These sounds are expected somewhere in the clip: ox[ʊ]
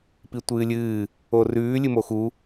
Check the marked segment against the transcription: incorrect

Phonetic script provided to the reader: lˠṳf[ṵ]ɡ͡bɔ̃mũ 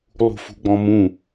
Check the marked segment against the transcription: incorrect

